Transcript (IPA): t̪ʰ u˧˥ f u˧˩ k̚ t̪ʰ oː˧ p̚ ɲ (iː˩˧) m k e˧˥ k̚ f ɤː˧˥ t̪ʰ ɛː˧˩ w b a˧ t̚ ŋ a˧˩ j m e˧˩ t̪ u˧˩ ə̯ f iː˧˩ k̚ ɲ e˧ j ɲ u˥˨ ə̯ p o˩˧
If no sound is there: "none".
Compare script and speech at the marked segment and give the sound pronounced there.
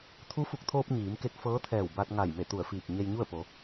iː˩˧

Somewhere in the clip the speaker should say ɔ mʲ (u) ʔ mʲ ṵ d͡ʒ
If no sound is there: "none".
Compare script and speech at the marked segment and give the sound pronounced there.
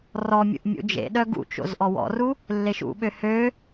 ṵ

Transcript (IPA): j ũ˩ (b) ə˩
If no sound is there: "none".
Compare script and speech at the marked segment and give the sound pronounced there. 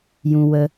w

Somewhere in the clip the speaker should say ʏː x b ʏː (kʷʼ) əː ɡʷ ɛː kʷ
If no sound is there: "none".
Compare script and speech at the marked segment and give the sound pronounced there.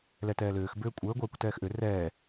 kʷʼ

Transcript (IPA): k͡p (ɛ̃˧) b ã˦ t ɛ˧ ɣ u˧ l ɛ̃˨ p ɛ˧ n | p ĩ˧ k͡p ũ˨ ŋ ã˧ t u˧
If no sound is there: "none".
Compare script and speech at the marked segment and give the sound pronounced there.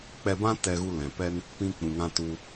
ɛ˧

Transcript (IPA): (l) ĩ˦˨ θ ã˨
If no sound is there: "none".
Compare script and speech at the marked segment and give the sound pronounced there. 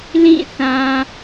l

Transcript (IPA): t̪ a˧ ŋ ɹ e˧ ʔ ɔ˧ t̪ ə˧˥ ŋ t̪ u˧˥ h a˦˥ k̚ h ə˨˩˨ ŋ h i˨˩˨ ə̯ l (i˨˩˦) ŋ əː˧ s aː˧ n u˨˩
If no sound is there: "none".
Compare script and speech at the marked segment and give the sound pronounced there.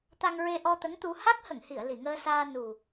i˨˩˨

